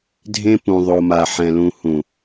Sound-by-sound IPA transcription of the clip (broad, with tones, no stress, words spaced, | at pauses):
dʱẽ˦pũ˨ ðˤo˨ma˨ħɛ̃˨lũ˨ hũ˨